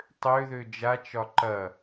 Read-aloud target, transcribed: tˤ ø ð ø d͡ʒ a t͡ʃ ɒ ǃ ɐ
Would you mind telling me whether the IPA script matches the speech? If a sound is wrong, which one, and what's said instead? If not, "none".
none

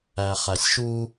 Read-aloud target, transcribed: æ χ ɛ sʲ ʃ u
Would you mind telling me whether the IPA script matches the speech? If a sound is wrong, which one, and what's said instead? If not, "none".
ɛ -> æ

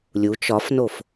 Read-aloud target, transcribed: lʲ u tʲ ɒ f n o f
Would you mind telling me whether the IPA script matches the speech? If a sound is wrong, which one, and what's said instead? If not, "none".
tʲ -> t͡ʃ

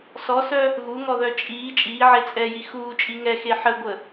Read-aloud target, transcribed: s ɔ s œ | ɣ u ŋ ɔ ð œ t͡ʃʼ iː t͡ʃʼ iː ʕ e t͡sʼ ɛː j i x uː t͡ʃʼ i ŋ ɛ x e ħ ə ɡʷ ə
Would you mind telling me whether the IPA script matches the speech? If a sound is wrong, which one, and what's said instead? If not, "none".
none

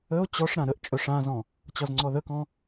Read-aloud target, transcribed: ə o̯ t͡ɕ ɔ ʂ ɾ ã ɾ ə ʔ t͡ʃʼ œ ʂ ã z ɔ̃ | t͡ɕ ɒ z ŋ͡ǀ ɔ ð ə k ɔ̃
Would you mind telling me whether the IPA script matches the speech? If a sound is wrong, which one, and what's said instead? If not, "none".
none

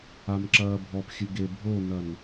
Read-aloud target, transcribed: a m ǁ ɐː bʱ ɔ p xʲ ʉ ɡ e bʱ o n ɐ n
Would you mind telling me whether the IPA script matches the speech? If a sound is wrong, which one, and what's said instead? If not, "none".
none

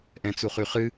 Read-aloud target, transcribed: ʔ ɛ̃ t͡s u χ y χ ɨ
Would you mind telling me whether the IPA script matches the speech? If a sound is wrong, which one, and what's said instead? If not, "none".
none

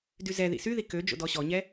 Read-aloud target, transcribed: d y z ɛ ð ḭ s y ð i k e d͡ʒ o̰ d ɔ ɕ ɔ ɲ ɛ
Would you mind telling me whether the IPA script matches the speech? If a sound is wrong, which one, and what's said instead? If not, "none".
e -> ø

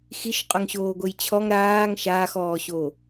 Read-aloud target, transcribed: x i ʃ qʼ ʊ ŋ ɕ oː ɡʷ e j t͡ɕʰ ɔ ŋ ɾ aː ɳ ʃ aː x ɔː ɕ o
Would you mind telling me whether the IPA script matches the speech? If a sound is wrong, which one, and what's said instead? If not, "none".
ɳ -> ŋ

